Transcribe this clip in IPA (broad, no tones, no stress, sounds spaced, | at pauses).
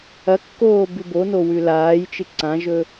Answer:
ɐ kː oː b ʉ b o n o w ʉ l aː j t͡ʃ ɨ ǀ ã ʒ ɵ